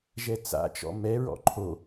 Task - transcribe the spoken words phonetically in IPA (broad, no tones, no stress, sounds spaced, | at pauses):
ʒ ɛ t͡s a̰ t͡ʃ ɔ̰ m ɛ ɹ ɔ̰ ǃʰ o